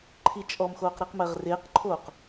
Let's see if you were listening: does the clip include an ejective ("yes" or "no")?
yes